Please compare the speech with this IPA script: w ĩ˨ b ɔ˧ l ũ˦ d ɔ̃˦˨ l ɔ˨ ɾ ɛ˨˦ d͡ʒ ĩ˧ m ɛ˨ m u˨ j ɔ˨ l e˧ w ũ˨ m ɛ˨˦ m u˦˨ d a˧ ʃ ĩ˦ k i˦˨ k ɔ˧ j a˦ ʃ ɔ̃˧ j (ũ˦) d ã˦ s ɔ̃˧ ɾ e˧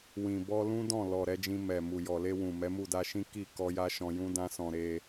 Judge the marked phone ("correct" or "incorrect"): correct